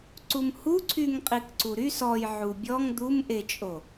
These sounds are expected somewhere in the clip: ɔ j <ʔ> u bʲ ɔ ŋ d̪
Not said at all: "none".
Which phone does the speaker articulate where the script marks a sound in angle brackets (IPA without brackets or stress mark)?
ʕ